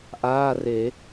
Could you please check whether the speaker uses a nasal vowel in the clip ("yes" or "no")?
no